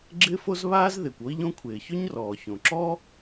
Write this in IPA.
ɡ͡ǁ ɪː˥ f o˥ z β aː˥ z ð ɪː˩ kʷ o˥ i̯ ʎ õ˥ kʷʰ ɪː˩ ç ʊ˥ ɲ r ɔː˩ ç õ˩ ǁ ɔː˥

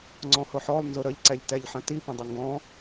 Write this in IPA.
ŋ͡ǀ ɔ̃ h ʊ ħ ɔ lˠ n z ʊ ɾ ə ʎ ǀ ɛ ʎ t ɛ ʎ ħ ə̃ t i p ə̃ dˤ ə ŋ ɡ ɔ̃

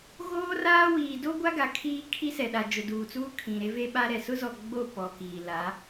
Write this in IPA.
ɣ oː˦ r aː˦ w iː˨ d o˦ ɡʷ a˦ ɡ a˨ kʰ iː˦ kʰ i˦ s ɛ˨ ɗ a˨ d͡ʒ ʊ˨ d uː˨ t͡s uː˦ kʰ ĩ˨ ɾ e˦ v e˦ ɓ a˦ ɾ ɛ˨ s ʊ˦ z ɔ˨ ɡ͡b o˦˨ p ɔ˨ k iː˨ l a˨˦

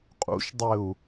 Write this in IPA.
qʼ ṵ ʃ dˤ ɘ u̯

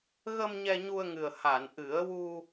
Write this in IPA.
ɣ ə˧ m ɲ ɛ˧ ɲ u˧ ə̯ ŋ ɨ˨˩ ə̯ h a˨˩˨ n ʔ ɨ˨˩˦ ə̯ w u˧

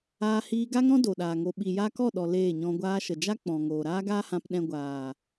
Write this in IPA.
aː˧ h iː˧ ɡ a˦ ŋ ɾ ɔ̃˦ d o˨ ɗ aː˨ ŋ o˧ ɓ i˨ j a˧ k ɔ˦˨ ɗ ɔ˨ l eː˦˨ ɲ ɔ̃˧ ɡʷ aː˧ ʃ ə˨ d͡ʒ a˦ k͡p ɔ̃˨ ŋ oː˨ ɾ aː˦ ɡ aː˦ h ã˧ p ɗ ɛ̃˧ ɡʷ aː˨

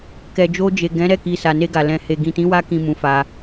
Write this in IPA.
k ɛ˨ d͡ʒ o˧ d͡ʒ e˨ ɡ ɛ̃˨˦ ɾ ɛ˦˨ k i˨ s a˨ n e˧ ɡ a˨ l ɛ̃˨ h e˨ ɡ ĩ˨ t ĩ˨˦ w a˧ k ĩ˨ m ũ˨˦ f a˧

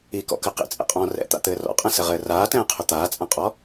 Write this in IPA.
i k ɔ̰ k ɘ q ḭ t͡sʼ ɛ̰ qʼ ɔ̃ː r ɛ̰ t̪ a̰ t̪ ɘː r ɔ̰ qʼ ɛ̃ s ɘ ʁ ɘː r aː t ɛ̃ː qʰ ɵ t̪ aː t͡sʼ ã qʼ ɔ

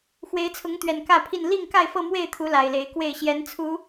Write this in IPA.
x w e˨˦ ɪ̯ t͡sʰ ʊ˨˦ ŋ t̪ ɥ ɛ˨˩ n k ä˥˨ pʰ i˥˨ n l i˥˨ ŋ k a˥˨ ɪ̯ f ɤ˥˨ m w e˥˨ ɪ̯ t̪ʰ u˨˦ l a˨˩ ɪ̯ l e˨˦ ɪ̯ k w e˥˨ ɪ̯ ɕ j ɛ˨˦ n t͡sʰ u˨˦

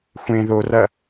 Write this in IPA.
xʷ ẽ ð o r ɐ

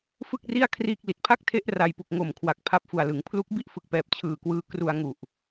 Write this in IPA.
f ɯ˥˩ k̚ r i˥˩ a̯ kʰ r iː˥˩ k̚ l i˨˩ t̚ pʰ a˥˩ k̚ tʰ e˦˥ ʔ r a˧ j p u˨˩ k̚ ŋ o˨˩ m kʰ w a˨˩ k̚ pʰ a˦˥ p̚ f u˨˩ a̯ l ɯ˩˦ ŋ pʰ l u˦˥ k̚ b i˥˩ ʔ f ɯ˨˩ k̚ p ɛː˨˩ p̚ t͡ɕʰ ɯː˨˩ k w ɯː˧ k r u˧ a̯ ŋ u˨˩ ʔ

